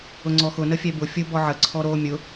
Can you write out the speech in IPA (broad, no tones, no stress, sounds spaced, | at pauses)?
ʊ ŋ͡ǀ ɔ x ʊ n ə fʲ ɛ b ʊ fʲ ʊ b ɔ ʕ ə ǀʰ ɔ ɾ o mʲ ʊ